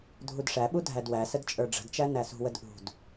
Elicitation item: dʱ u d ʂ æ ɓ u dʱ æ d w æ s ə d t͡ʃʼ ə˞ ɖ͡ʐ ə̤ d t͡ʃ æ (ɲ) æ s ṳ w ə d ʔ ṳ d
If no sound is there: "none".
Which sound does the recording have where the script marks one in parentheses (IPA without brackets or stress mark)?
n